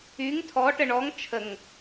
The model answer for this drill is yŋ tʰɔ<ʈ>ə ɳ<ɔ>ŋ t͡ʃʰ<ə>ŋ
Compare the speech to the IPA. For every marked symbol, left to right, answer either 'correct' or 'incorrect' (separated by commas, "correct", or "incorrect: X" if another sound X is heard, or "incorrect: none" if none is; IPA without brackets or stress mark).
correct, correct, correct